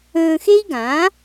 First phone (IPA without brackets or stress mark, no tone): ə̃ː